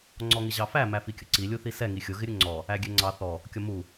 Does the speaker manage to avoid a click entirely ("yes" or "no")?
no